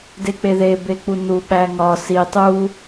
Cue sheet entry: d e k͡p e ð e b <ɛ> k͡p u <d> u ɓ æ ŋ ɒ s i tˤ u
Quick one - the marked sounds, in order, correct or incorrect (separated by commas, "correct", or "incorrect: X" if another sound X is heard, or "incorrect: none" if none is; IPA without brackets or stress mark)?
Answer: incorrect: e, incorrect: n